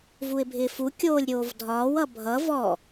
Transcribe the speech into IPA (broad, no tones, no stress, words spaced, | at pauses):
vuɪ̯bʱɪːfu kʲoːlʲɾʲoːvdʱɒːw ʌbʱʌ vɔ